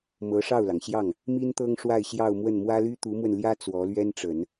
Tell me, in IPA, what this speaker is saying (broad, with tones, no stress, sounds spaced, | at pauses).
m ɤ˧˥ ʂ ɑ˥˩ ʊ̯ l ɑ˩ ŋ ɕ j ɑ˥˩ ŋ | m i˥ n t̪ ɤ˥ ŋ ʂ w a˥˧ ɪ̯ ɕ j ɑ˥˧ ʊ̯ m w ə˥˩ n m w ä˥ l y˥ t̪ u˧˥ m w ə˧ n l j ä˥ t͡s w ɔ˧˥ l ɥ ɛ˥ n ʈ͡ʂ ə˨˩˦ n